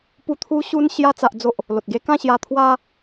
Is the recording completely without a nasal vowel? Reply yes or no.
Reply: no